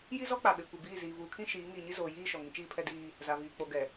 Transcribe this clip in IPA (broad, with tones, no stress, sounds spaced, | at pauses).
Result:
j i˦ z ɔ˦ k͡p a˨ ɓ e˨ kʷ i˨ b iː˦˨ z iː˨ v uː˨ kʰ ĩ˦ ʃ iː˨˦ ŋ iː˨ ɲ i˦ z oː˨ j iː˦˨ ʃ ɔ˨ ŋ ĩ˦ t͡ʃ iː˦ pʰ ɛ˦ d iː˦ | z a˨ v iː˨ k͡p o˨ ɡ ɛ˨